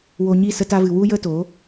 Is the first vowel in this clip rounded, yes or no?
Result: yes